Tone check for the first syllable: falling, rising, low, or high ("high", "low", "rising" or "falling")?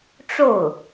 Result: falling